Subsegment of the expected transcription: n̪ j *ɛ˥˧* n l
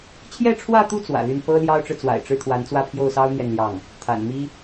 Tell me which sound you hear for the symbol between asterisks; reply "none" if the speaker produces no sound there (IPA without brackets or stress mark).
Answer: ɛ˥˧